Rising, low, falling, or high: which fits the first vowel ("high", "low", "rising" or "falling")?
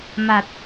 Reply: low